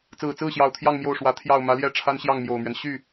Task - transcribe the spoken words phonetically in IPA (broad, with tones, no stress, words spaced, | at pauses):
t͡sɹ̩˨˩t͡sɹ̩˥˩ɕjɑ˨˩ʊ̯ t̪ʰjɑ˥˧ŋ mjo˥˩ʊ̯ʂwä˧˥ t̪ʰjɑ˥˩ʊ̯ mä˧˥ljɛ˥˩ ʈ͡ʂʰa˥nɕjɑ˥˩ŋmjo˨˩ʊ̯mɥɛ˦n ɕy˥˩